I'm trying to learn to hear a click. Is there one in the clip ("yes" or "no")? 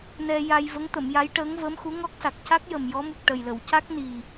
no